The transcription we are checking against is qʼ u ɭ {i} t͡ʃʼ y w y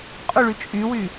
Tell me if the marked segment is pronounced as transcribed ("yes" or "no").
no